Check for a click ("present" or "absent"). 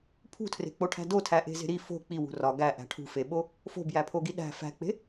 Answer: absent